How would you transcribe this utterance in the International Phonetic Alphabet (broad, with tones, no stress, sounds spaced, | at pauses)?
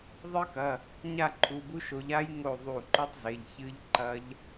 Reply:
ðˤ ɨ˦˥ k ɐ˩˧˩ | ɲ a˥˨ ǃʰ u˩˧˩ b u˦˥ ʃ o˨˦ ʎ a˦˥ j ŋ o˧˩ ðˤ u˧˩ ǃ ɵ˦˥ tˤ z e˩˧˩ ʎ ç ɨ˦˥ ʎ ǃ ɐ˦˥ ʎ